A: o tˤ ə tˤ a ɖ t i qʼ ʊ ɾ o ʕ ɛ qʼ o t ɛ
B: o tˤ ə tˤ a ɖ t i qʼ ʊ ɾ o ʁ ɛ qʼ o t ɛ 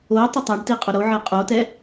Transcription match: A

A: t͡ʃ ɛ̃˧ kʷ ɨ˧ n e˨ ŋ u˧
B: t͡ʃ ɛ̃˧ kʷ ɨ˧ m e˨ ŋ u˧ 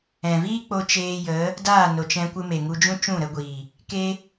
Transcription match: B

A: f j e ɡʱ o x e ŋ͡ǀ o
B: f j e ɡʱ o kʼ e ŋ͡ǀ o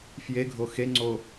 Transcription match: A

